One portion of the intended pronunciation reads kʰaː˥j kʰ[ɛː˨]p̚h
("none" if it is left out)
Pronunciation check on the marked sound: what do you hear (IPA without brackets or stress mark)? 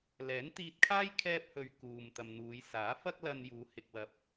ɛː˥